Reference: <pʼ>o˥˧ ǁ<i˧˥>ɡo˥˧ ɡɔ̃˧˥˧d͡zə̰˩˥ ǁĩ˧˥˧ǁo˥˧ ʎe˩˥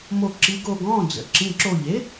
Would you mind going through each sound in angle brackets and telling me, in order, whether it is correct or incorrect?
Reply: incorrect, correct

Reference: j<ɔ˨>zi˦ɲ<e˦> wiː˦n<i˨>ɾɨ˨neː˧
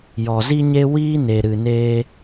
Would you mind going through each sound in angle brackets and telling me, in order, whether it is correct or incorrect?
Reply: correct, correct, incorrect

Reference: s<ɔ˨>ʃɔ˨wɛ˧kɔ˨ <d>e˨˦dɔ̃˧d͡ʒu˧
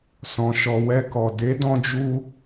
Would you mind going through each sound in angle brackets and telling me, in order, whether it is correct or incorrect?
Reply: incorrect, correct

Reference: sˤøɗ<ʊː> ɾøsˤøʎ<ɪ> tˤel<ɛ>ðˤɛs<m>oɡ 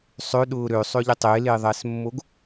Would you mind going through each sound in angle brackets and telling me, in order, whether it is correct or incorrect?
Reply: correct, correct, incorrect, incorrect

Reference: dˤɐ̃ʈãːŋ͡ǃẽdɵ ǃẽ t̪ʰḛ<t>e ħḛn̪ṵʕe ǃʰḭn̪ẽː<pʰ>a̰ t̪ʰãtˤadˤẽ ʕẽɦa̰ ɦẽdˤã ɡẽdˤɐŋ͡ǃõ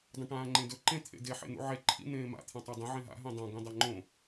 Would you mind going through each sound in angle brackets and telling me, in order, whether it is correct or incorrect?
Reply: incorrect, incorrect

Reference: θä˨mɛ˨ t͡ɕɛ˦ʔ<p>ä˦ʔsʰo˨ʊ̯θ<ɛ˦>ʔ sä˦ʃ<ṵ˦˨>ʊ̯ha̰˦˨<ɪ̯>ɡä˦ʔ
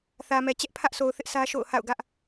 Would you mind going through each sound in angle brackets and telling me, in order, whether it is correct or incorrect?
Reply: incorrect, incorrect, incorrect, incorrect

